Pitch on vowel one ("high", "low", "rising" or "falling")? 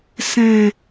low